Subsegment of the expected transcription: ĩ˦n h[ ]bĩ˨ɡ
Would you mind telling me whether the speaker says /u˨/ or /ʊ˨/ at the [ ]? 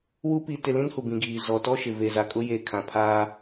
u˨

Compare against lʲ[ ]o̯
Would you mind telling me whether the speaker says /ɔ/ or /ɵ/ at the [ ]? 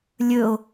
ɵ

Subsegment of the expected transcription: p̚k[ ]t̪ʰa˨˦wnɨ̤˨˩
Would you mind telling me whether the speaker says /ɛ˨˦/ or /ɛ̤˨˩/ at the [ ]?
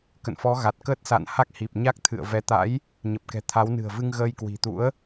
ɛ̤˨˩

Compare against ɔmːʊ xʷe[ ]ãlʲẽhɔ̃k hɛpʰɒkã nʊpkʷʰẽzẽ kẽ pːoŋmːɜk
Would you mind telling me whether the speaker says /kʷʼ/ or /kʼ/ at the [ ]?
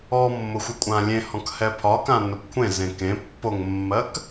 kʷʼ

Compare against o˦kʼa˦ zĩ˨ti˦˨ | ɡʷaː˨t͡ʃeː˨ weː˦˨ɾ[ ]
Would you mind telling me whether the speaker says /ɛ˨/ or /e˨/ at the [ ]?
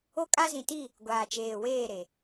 e˨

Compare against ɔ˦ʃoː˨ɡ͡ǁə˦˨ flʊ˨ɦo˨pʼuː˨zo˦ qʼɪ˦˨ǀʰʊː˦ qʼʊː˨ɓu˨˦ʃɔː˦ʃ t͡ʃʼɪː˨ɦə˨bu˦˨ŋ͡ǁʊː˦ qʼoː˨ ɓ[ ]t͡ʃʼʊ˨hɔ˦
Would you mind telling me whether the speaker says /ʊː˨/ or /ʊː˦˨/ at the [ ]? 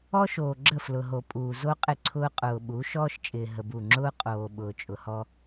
ʊː˨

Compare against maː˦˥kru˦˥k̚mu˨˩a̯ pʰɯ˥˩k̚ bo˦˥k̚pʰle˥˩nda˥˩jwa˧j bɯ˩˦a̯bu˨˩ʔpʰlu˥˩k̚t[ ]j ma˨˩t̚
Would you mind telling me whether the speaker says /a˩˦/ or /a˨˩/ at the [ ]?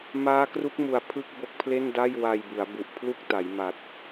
a˩˦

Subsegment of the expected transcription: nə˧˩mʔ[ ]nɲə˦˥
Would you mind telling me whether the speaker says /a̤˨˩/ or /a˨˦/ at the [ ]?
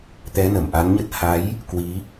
a˨˦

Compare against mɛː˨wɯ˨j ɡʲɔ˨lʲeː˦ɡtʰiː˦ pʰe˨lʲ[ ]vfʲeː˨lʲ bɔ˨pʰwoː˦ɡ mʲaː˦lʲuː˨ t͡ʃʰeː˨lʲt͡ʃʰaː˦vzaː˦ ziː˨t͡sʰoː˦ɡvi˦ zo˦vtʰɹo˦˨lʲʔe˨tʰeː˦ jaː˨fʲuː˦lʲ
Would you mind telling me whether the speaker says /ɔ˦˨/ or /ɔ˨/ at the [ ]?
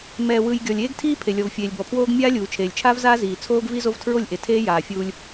ɔ˨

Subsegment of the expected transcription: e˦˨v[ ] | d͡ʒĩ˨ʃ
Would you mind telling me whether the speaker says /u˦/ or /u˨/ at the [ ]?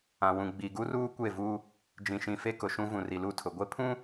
u˦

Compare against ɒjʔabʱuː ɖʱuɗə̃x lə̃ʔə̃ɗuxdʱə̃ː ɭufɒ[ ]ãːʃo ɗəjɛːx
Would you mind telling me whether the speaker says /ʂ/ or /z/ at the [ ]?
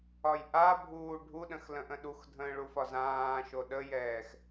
z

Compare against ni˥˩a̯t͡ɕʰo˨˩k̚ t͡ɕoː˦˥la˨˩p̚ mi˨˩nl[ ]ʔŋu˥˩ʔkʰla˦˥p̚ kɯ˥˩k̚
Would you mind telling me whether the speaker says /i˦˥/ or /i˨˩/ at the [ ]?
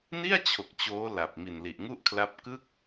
i˨˩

